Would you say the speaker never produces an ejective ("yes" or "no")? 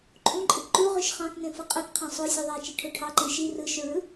no